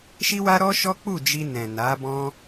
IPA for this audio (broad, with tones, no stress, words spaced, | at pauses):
ʃi˦wa˦ɾɔ˦ʃɔ˦ k͡pu˦˨ d͡ʒi˧nɛ̃˨ na˨˦bɔ̃˦